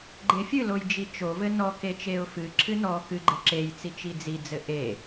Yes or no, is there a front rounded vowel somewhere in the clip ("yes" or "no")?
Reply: no